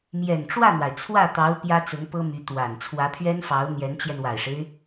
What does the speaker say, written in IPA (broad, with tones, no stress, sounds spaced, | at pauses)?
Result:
m j ɛ˨˩ n ʈ͡ʂ w ä˥˩ n̪ w a˩ ɪ̯ t͡sʰ w ä˥˩ t̪ ɑ˧˥ ʊ̯ p j ä˥ t͡s ʊ˧˥ ŋ p ɤ˥ m y˧˥ t̪ w a˨˩ n t͡sʰ w ä˧˥ pʰ ɥ ɛ˥ n f ɑ˧˥ ʊ̯ n̪ j ɛ˧˥ n t͡ɕ j ɛ˧ n w a˨˩ ɪ̯ ʂ e˦ ɪ̯